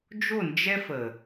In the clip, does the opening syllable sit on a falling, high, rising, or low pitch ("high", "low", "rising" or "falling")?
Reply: falling